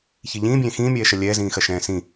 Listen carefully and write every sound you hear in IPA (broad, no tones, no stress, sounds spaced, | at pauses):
ç i ʎ ĩː bʲ ẽː x ĩː mʲ ɛː ʃ ɐ lʲ ɛː z ĩː x ɐ ʃ ɛ̃ː s ĩ